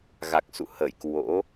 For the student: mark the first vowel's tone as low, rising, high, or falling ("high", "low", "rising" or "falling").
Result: low